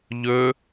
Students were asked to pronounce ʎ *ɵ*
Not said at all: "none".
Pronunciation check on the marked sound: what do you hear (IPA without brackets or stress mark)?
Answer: ɵ